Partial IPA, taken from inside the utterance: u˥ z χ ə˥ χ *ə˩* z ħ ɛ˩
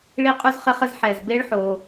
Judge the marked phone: incorrect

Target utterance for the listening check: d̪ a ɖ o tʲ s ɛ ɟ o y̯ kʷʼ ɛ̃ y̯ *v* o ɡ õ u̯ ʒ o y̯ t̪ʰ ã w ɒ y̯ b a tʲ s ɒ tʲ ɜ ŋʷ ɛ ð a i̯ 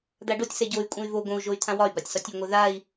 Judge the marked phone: correct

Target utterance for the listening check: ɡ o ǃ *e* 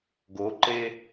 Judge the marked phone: correct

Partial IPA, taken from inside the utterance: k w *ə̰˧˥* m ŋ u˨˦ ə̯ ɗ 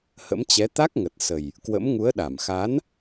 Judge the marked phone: correct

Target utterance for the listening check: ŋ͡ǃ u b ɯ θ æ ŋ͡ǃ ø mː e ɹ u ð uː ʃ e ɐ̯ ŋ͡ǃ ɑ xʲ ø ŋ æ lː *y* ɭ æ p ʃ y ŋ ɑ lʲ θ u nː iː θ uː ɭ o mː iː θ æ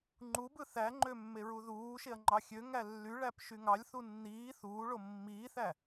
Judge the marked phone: correct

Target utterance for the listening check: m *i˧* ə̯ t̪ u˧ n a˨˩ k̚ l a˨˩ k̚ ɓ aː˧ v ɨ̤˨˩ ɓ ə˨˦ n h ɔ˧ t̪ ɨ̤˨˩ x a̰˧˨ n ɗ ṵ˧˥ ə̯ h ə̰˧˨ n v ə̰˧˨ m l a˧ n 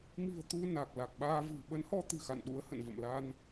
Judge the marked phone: incorrect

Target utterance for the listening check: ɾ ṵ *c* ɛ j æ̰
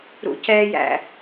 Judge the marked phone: correct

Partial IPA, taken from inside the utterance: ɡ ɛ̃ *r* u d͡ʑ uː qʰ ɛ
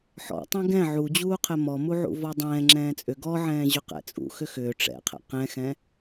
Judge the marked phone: incorrect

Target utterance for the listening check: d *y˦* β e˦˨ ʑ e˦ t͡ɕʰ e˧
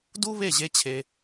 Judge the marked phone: incorrect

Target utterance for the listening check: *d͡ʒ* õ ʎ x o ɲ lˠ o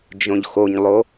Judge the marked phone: correct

